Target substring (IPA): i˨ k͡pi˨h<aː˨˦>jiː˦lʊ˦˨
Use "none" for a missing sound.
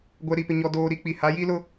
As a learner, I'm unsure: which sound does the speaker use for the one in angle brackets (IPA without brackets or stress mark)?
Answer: a˨˦